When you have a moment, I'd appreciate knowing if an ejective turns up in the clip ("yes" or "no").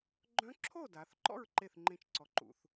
no